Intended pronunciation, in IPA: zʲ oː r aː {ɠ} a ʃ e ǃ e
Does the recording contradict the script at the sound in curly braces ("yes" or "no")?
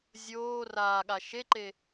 no